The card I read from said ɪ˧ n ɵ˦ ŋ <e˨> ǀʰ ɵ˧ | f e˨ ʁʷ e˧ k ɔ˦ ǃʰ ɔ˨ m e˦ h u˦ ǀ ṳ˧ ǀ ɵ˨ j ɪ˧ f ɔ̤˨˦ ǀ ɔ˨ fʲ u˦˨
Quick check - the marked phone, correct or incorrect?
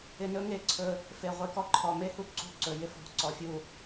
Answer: incorrect